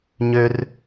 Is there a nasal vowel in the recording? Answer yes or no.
no